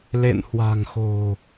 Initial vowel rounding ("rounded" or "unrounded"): unrounded